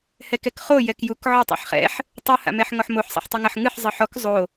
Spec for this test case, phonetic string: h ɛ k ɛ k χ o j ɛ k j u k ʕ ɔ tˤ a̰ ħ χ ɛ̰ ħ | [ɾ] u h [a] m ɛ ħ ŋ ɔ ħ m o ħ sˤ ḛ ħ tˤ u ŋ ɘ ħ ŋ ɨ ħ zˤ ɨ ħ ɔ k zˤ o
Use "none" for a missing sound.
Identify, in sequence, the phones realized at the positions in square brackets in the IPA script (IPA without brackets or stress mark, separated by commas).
tˤ, a̰